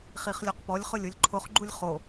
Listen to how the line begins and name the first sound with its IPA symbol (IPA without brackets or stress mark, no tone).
χ